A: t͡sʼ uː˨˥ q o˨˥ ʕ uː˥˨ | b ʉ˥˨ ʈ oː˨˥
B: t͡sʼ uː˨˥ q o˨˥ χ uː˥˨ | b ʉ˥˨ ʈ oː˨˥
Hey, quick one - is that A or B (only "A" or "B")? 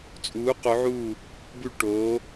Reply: A